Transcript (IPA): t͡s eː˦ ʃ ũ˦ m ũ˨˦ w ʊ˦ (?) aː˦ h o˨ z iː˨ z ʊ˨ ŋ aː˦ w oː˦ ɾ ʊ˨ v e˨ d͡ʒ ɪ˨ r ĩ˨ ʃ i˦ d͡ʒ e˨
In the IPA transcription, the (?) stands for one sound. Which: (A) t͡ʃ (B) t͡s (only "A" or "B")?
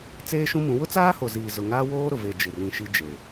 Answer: B